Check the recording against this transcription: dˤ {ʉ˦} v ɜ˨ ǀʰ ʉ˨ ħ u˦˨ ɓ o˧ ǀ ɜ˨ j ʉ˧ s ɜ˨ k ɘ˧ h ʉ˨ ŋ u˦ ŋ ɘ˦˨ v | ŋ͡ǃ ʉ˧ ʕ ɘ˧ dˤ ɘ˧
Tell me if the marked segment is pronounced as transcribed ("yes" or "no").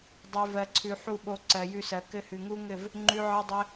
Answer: no